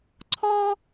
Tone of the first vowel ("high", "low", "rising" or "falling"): high